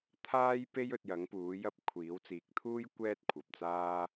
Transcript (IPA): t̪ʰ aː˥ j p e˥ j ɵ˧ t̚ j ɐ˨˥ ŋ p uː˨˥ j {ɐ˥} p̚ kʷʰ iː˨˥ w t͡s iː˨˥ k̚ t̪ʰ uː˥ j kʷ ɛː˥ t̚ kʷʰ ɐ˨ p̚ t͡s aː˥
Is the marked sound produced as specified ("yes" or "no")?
yes